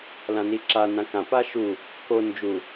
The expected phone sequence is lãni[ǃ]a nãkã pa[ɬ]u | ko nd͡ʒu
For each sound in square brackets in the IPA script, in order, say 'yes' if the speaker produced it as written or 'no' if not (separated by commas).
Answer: no, no